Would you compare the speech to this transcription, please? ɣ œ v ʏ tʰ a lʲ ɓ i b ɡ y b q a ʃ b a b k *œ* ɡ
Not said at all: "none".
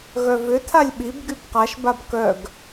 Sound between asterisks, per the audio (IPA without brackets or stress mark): œ